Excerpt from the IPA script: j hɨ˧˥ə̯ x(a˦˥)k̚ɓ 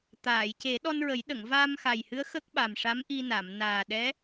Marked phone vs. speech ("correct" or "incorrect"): incorrect